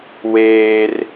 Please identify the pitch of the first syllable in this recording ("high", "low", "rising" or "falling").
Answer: high